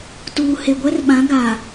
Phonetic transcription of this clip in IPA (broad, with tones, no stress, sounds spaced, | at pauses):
t uː˨ h e˨ ɡʷ ɛ˦ r ɓ ã˨˦ ɡ a˨